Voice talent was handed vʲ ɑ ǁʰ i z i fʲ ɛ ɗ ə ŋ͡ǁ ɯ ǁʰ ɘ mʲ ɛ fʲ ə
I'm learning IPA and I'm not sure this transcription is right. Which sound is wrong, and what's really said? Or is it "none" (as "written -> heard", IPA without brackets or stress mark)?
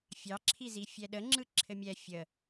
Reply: vʲ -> fʲ